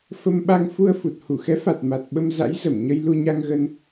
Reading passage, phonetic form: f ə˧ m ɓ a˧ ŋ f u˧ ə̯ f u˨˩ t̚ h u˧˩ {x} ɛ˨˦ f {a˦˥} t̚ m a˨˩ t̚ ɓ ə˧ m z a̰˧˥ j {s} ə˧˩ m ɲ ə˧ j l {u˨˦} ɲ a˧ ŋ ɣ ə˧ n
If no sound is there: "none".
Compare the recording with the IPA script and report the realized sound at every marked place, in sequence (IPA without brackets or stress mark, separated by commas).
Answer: x, a˨˩, z, u˧